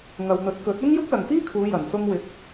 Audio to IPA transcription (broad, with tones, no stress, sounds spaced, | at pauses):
ŋ ɐ˨ w n̪ ɵ˨˥ t̚ k ɵ˨˥ t̚ ʊ˥ ŋ j ʊ˥ k̚ l ɐ˨ ŋ f iː˥ kʰ uː˨˧ j ɐ˨˩ n s ʊ˧ ŋ w ɪ˨˥ k̚